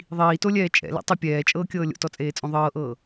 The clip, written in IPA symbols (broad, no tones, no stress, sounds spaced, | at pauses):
ðˤ iː t o lʲ ɛː t͡ʃʼ ɛ̰ l ɛ̰ tˤ ɪ pʲ ɛː t͡ʃʼ ɤː kʲ ɤː lʲ o̰ t ɔ t͡sʼ eː t͡sʼ õ ðˤ ɤː ʔ ɤː